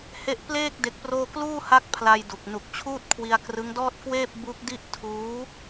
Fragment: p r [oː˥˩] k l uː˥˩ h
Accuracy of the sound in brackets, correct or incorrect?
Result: correct